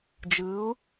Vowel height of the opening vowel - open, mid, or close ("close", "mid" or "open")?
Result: close